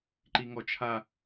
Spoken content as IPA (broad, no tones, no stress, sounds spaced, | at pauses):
ǃ i ŋ ɔ t͡ʃʰ a